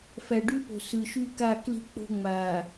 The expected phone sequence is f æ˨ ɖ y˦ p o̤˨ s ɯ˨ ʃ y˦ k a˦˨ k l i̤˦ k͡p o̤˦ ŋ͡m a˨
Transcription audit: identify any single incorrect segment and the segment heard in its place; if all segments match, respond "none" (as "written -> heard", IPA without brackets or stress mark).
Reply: none